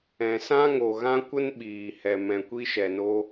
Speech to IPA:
ɛ̃˨ s ã˦ ŋ o˨ ɣ ã˦ kʷ ə˦ n ɓ iː˨ h ɛ˨ m ɛ̃˨ kʷ i˦ ʃ ɛ˨ n o˦

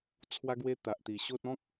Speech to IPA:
t͡sʰ w a˦ ɡ w e˦ t̪ a˨ ʔ t̪ i˨˩ ɕ o˦ t̚ ɔ̃˦ k̚

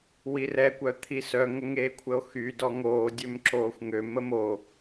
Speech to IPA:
w i r ɛ kʷ œ t̪ʰ i s œ ŋ ə ŋ eː kʷʰ ə o̯ x y d ɔ ŋ oː dʲ ø m ǁ oː xʷ ŋ ø m ə m o

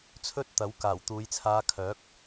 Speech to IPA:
t͡sʰ ɵ˥ t̚ t̪ ɐ˨˥ w k aː˨˩ w t̪ uː˨˧ j t͡sʰ aː˧ kʰ œː˨˥ k̚

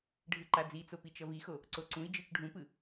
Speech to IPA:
ɖʱ ɯ ǃ a d͡z i t͡s o p i t͡ʃ ʌ v i x o | ǀ o ǀ ũ i̯ d͡ʒ ɯ t͡ʃ ɖʱ ũ p ɯ

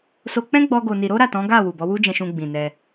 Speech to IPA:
s o˧ k͡p ɛ̃˦ ɡ͡b ɔ˦ ɡ o˧ n i˧ ɾ o˦ ɾ a˦˨ t ɔ̃˨˦ ɡ a˦˨ w u˨ b ɔ˨˦ w u˦ d͡ʒ ɛ̃˧ ʃ ũ˧ ɡ͡b ĩ˨ n ɛ˧

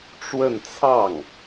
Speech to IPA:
ʈ͡ʂ w ə˥˧ n t͡sʰ ɑ˥˩ ŋ

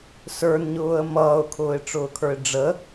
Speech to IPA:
s ə˞ n ɲ ʊː ə̯ m ʌː ʊ̯ kʰ ʊː ɪ̯ ʈ͡ʂ ʊː kʰ ə˞ ɪ̯ ɖ͡ʐ ə

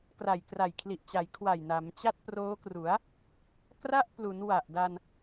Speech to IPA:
k r a˨˩ j k r a˨˩ j kʰ l i˨˩ ʔ t͡ɕ a˩˦ j kʰ w a˨˩ j n a˩˦ m t͡ɕ a˥˩ t̚ p r oː˦˥ k r u˩˦ a̯ | k r a˥˩ ʔ p l u˩˦ n w a˨˩ ʔ d a˧ n

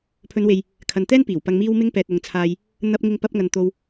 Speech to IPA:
pʰ ɵ˨˧ n w e˨ j | kʰ ɐ˨ n t̪ ɛː˥ n p iː˨˩ w p ɐ˧ ŋ m iː˧ w m ɪ˧ ŋ p ɛː˨ t̚ ʊ˨ ŋ t͡sʰ aː˧ j | n̪ ɐ˧ p̚ ŋ ɪ˧ ŋ p ɐ˧ p̚ ŋ ɐ˨ n t̪ o˧ w

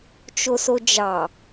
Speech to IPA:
t͡ʃ o s o d͡ʒ ɑ

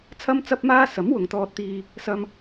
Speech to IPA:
t͡sʰ ɐ˥ m t͡s ɐ˥ p̚ m aː˥ s ɐ˨˥ m w ʊ˨ ŋ t̪ ɔː˧ t̚ t̪ iː˧ | s ɐ˧ m

